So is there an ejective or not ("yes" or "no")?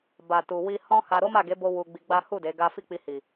no